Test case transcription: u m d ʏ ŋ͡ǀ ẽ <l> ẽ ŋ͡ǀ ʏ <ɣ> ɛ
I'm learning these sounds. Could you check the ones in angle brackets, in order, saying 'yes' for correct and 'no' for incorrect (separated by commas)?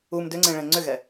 no, yes